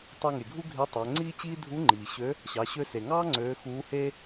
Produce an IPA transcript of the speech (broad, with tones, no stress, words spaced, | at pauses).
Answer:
tˤø˧ŋe˩ɡʱu˥ ɡʱe˧˥tˤæ˩˧ ŋ͡ǀiː˥t͡ɕiː˥ dʱu˧˥ŋ͡ǃiː˩ɕø˧˥ | ɕɑ˩˧ɕø˧se˩ŋɑː˥ ŋ͡ǀøː˧˥ xuː˧˥he˥